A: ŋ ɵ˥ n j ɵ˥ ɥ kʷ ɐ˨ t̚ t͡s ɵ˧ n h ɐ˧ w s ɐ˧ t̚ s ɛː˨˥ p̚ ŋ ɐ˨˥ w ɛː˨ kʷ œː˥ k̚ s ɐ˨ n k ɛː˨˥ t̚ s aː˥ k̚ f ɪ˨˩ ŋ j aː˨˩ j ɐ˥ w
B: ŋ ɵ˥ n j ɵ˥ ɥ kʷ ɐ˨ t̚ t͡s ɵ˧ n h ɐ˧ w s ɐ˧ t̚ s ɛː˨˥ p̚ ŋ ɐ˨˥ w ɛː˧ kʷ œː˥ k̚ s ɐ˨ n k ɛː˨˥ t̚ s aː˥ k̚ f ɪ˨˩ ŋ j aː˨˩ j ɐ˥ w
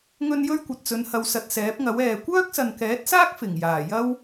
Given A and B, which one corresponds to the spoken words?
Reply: A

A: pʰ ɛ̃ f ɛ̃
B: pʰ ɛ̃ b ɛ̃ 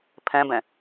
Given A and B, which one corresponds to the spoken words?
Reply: B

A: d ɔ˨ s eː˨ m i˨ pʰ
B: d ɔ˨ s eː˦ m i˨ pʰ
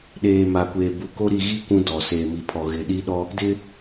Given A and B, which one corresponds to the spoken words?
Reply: A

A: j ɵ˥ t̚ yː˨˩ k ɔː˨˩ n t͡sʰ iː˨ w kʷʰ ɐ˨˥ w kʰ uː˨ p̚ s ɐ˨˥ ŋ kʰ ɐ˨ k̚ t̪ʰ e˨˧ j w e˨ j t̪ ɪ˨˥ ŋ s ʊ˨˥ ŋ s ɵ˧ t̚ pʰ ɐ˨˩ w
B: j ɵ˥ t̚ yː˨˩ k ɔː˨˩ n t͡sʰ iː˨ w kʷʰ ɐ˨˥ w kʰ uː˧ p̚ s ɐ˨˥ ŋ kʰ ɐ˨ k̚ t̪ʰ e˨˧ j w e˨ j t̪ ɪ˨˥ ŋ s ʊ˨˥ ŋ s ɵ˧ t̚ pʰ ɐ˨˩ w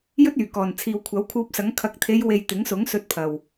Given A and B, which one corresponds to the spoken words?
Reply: B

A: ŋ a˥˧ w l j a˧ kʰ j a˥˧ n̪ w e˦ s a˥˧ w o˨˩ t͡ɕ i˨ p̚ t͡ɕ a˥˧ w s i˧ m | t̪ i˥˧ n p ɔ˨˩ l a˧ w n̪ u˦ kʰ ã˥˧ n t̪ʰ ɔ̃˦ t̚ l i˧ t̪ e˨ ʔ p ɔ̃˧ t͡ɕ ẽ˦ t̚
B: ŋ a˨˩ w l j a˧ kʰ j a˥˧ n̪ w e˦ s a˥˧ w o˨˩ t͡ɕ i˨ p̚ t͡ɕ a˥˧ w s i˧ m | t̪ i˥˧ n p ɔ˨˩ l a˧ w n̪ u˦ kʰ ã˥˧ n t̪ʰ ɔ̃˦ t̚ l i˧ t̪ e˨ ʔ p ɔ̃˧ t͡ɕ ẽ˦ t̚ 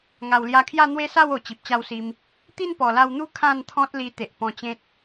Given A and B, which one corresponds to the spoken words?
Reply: B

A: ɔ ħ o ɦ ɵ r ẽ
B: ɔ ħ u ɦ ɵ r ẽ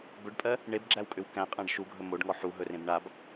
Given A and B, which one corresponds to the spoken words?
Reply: B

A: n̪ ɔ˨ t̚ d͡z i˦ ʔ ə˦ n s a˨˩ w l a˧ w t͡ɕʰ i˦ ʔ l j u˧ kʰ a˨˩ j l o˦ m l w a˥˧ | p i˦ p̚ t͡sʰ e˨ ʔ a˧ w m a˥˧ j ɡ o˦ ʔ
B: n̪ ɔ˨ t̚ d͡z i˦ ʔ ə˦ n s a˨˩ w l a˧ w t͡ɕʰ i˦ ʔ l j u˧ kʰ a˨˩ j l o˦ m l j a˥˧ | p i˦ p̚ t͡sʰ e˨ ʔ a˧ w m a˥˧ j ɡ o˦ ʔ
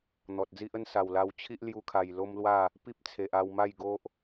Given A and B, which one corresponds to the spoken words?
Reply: A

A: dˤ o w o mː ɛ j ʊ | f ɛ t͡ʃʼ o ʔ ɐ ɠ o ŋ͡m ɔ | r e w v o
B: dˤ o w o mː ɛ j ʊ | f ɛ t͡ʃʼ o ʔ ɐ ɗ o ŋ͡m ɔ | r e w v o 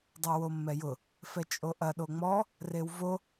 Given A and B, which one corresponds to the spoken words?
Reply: B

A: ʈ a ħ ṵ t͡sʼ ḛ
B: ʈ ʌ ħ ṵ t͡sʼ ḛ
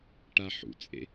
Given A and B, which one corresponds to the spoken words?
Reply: A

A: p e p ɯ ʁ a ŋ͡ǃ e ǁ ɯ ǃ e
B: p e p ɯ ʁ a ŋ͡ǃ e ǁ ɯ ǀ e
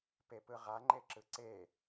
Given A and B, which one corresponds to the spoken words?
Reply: B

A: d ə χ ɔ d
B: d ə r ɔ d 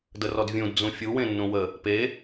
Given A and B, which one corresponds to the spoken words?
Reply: B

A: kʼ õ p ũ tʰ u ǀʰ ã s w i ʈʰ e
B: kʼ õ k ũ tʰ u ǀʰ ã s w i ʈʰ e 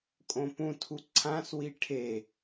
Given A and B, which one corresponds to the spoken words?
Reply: A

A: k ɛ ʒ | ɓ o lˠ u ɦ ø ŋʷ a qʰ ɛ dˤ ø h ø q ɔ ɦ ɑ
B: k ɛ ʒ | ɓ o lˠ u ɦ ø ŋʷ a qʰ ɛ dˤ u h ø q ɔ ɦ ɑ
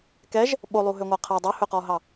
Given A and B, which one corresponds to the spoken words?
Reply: A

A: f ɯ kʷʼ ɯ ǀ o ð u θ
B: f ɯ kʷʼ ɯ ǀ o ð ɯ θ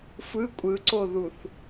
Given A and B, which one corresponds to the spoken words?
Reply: A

